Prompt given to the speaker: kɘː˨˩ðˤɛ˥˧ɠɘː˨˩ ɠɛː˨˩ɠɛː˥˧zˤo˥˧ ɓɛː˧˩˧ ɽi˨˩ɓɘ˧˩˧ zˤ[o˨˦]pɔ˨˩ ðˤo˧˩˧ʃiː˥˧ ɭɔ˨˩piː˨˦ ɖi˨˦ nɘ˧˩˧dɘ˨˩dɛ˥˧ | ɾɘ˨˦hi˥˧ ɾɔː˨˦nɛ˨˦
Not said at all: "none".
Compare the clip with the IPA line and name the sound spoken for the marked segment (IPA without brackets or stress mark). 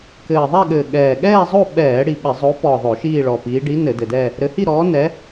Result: o˨˦